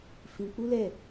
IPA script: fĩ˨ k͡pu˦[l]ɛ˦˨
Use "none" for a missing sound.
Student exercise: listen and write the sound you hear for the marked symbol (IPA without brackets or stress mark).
l